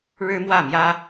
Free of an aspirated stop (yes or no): yes